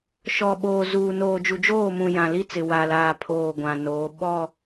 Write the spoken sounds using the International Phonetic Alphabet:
ʃ ɔ˨ ɓ oː˨ z uː˨ n oː˨ d͡ʒ u˨ d͡ʒ oː˦˨ m ũ˨ j ã˨ l i˦ t͡s ɪ˨ w a˨ l aː˨ pʰ oː˨ ɡʷ ã˨ n oː˨˦ ɓ ɔ˦˨

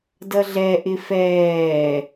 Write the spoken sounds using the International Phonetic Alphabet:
d ʌ ɮ ɛ ʔ ɪ f ɛː

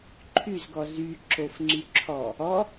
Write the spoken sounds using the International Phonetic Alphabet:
ǃʰ y z ɡ ɔ z y ǁ o f ŋ͡ǀ y ǁʰ ɔ | ɔ

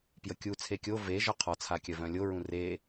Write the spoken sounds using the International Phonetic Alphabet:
p j ə kʲ u t͡sʰ e kʲ o v e ʒ ɒ qʰ ɒ t͡sʰ a kʲ œ v œ̃ lʲ o ɹ ũ r e

